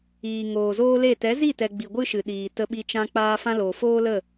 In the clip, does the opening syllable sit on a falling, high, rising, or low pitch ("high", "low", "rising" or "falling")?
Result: low